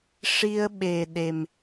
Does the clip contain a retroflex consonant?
yes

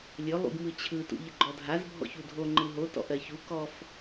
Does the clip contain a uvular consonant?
no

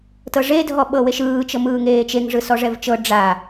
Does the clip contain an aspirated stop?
no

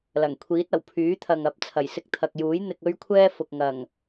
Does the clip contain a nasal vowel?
no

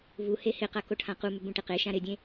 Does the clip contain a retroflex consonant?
yes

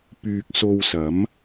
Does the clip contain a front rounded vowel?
yes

